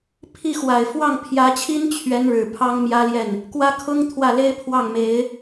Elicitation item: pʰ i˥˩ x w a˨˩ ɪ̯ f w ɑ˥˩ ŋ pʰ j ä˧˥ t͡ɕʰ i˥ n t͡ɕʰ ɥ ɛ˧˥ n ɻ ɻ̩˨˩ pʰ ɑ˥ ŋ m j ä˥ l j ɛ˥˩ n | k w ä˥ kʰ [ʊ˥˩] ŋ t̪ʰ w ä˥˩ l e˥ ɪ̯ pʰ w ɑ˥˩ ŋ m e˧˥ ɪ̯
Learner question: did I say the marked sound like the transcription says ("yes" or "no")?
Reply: no